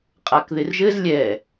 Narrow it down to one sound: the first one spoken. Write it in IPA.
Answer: qʼ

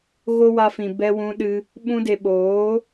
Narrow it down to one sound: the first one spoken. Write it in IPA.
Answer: ɣ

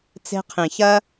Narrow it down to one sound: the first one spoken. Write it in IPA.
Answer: t͡s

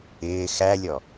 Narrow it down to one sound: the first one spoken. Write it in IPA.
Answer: ɪː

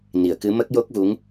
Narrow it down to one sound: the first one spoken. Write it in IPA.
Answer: n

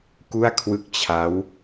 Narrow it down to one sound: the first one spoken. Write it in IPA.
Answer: k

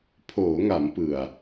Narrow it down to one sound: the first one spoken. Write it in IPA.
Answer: pʰ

